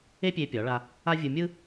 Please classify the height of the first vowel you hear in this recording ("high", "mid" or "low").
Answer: mid